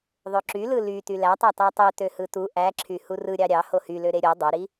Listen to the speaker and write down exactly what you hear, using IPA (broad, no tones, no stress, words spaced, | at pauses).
ðˤøǁylɯ ly tylætˤɑ tɑtˤø tøhɯtu ʔæǁʰy hurɯ ɾʲɑɾʲɑ hohylø ɾeɾʲo dˤøɾi